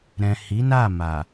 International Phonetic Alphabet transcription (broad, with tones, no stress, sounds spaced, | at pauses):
ɾ ɛ̃˨ h i˨˦ n a˦˨ m a˨